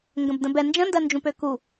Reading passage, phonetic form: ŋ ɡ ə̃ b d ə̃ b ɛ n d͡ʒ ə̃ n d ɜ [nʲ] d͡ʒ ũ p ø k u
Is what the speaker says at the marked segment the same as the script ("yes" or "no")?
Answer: no